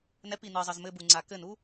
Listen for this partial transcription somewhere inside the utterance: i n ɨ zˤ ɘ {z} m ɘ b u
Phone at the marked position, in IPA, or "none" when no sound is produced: z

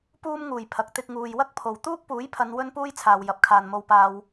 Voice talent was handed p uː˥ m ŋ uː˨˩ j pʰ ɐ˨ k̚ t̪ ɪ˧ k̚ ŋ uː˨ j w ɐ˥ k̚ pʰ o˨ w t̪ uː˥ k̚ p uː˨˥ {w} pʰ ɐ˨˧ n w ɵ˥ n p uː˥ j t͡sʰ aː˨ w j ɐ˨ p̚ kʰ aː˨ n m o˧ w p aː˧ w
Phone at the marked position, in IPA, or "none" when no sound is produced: j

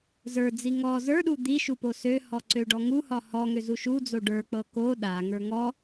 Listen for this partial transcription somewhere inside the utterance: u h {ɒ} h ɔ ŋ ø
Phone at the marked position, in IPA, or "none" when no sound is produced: ɒ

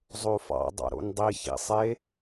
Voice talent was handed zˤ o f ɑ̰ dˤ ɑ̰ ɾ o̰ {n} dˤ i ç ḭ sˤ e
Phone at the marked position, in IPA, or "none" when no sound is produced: n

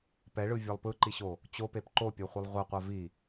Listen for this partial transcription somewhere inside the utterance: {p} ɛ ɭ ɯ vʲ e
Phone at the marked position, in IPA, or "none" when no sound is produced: p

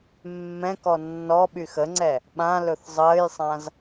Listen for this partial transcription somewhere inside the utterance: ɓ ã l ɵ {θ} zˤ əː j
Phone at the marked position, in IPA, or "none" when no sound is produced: θ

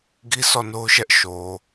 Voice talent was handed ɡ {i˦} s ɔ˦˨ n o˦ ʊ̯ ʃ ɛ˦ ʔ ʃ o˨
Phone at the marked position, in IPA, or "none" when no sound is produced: i˦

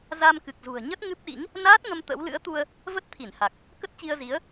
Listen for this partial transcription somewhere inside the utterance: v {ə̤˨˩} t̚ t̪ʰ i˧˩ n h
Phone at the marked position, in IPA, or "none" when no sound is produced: ə˦˥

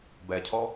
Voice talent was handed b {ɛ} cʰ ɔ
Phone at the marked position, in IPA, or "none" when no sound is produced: ɛ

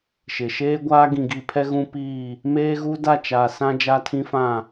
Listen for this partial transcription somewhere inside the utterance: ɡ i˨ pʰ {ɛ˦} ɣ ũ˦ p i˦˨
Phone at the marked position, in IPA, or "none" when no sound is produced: ɛ˦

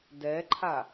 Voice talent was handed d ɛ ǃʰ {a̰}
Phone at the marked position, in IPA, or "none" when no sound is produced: a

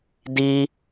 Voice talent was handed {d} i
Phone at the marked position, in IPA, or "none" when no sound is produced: d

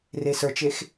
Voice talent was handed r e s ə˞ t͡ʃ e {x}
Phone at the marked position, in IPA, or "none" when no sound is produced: x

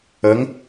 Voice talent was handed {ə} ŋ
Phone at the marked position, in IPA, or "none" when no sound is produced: ə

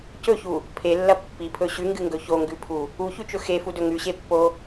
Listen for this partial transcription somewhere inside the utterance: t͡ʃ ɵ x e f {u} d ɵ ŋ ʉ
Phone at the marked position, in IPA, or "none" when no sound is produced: u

